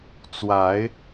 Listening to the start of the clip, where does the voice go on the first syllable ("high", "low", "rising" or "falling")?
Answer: rising